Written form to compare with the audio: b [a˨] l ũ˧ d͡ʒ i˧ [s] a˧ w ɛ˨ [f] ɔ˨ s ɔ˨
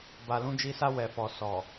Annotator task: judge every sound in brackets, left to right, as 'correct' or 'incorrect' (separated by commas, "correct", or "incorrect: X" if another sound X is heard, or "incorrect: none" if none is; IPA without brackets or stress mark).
correct, correct, correct